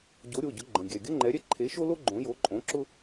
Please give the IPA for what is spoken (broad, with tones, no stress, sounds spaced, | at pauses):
ɟ o˨˥ ɾʲ o˩˧˩ ɟ ʊ˨˥ ɡ͡ǃ ə̃˩˧˩ ɡʲ ɛ˩˧˩ ɡʲ ə˥ ŋ͡ǃ ɛ˨˥ ɾʲ ɛ˥ ǃʰ e˨˥ ʃ o˥ l o˥ ɡ͡ǃ õ˨˥ j o˨˥ ǃʼ õ˨˥ ǁ ʊ˥